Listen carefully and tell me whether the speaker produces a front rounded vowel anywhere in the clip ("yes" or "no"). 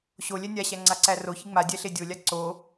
no